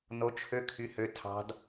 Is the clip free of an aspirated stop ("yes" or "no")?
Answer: no